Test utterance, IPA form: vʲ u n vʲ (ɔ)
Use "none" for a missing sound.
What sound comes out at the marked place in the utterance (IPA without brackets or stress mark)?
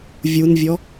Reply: ɔ